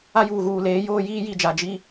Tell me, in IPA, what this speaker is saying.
a˦ j uː˨ ɣ uː˨ l eː˨˦ j oː˦ j iː˦ j i˨ d͡ʒ a˨ d͡ʒ i˦

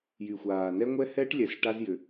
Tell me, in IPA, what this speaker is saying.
j y˨ xʷ aː˨ n ɛ˦ ŋʷ ɛ˦ h ɛː˦ ʈ lʲ ɛ˨ s ʈ a˦ z j ʏ˨

